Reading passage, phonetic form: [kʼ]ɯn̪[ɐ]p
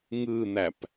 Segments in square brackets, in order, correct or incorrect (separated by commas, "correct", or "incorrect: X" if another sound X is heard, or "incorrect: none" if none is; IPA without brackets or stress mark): incorrect: ŋ, incorrect: æ